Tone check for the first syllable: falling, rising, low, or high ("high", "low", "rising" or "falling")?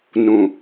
low